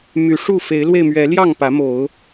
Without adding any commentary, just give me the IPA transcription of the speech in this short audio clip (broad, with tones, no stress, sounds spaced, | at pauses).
m y˨˦ ʂ u˥˨ f e˨˦ ɪ̯ l w e˧ ɪ̯ m ɥ ɛ˨˦ l j ɑ˥˨ ŋ p ä˨˦ m o˨˦ ʊ̯